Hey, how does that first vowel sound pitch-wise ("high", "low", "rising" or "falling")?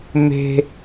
high